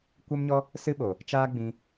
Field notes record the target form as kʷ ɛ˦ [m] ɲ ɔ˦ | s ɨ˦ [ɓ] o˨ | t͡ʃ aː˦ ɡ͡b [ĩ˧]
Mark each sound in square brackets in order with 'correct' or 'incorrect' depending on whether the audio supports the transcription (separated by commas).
correct, correct, correct